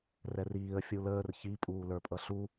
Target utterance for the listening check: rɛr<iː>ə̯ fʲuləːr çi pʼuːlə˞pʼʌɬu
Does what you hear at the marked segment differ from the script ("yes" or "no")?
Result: no